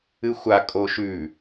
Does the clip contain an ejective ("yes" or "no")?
yes